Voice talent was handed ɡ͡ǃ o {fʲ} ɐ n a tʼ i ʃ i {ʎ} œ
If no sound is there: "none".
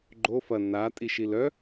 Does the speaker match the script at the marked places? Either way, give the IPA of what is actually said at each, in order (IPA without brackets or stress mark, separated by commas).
f, l